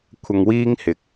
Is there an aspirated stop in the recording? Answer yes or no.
yes